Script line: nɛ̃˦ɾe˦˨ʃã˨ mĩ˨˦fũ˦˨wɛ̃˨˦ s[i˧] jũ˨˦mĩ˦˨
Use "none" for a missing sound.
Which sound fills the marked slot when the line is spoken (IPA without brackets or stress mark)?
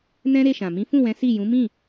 i˦˨